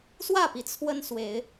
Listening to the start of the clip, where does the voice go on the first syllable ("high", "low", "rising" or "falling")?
falling